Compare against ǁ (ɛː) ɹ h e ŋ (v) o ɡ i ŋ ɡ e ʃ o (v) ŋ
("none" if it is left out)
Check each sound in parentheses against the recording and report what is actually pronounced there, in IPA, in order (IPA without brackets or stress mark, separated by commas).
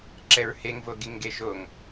ɛ, v, none